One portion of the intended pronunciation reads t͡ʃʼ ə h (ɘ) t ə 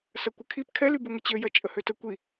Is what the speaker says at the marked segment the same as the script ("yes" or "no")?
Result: no